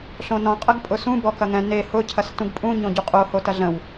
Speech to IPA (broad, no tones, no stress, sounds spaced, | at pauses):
ɬ õ n ɔ̃ qʼ ɐ ɡ pʼ ʊ s ũ b ɔ k ɐ ŋ ɛ̃ n e h ʊ cʰ ɐ s t ũ ɡ pʼ ũ ɲ õ ɟ u qʼ o h o t ɐ ɮ ə̃ w